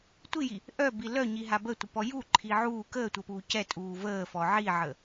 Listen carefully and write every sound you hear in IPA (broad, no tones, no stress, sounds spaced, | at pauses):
tʷ i j i | ʔ œ b i l œ ɲ i ɦ a b ə tʷ ə p ɔ j u ǃʰ i ʕ uː k əː tʷ əː p uː c ɛ tʼ uː v əː f ɔ ʕ i ʕ ə